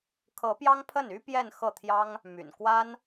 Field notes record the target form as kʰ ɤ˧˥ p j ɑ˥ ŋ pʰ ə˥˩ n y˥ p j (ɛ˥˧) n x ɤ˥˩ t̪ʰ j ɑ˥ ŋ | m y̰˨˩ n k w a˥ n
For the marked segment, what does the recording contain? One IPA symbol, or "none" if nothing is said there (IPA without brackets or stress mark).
ɛ˥˧